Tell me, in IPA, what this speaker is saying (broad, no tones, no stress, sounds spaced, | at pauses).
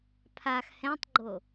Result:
pʰ a x h ɛ̃ tˤ ɡ͡ǃ o